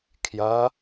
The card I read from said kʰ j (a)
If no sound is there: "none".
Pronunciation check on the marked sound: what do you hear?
ɐ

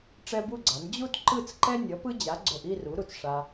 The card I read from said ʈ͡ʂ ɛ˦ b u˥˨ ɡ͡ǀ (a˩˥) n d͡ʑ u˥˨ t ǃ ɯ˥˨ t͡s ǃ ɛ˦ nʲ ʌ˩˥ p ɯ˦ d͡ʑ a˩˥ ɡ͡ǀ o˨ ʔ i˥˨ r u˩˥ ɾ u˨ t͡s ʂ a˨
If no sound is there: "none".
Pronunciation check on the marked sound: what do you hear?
a˩˥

